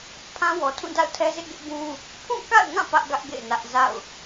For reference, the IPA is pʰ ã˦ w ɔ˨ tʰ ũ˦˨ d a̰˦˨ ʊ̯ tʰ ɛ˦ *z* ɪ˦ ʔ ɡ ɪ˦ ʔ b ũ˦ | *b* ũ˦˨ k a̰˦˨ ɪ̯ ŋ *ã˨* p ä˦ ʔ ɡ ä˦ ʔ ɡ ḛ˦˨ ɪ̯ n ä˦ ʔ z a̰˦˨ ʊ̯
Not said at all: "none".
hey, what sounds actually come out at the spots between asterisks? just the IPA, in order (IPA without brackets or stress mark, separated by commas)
z, pʰ, ã˦˨